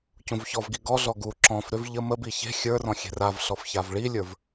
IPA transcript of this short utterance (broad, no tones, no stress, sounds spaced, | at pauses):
c ũ v ç ɔ v ɡ i ɡ ɔ ɮ ɔ ɡ u ǁ ɔ̃ f ɾ ʏ v ʎ ə m ə b i ç e̤ xʲ ə˞ r ɔ̃ xʲ e̤ r a v ɬ ɔ f ç a v ɭ i lʲ ə˞ v